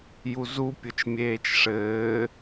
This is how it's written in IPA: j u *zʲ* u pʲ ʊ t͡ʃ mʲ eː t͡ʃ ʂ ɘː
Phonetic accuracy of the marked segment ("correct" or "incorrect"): incorrect